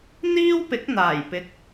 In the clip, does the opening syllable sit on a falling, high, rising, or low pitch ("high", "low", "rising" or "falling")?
high